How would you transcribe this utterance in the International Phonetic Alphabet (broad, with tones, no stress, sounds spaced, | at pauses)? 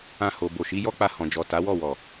ã˧ h o˨ b o˨ ʃ i˨˦ j ɔ˦ k͡p a˧ h ɔ̃˨ d͡ʒ ɔ˨ t a˨˦ w ɔ˦˨ w ɔ˨